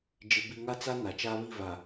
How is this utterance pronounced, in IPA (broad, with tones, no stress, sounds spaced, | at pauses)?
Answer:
d͡ʒ ɪ˦ b i˦ ŋ a˦ t͡s a˦ n a˨ t͡ʃ aː˦ β i˦˨ v a˨